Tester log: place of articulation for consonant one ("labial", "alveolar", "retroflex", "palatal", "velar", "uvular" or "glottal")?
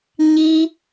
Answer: palatal